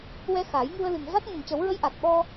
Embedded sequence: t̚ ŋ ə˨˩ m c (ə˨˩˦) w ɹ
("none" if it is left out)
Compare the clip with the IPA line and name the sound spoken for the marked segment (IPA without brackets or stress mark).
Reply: ə˨˩˦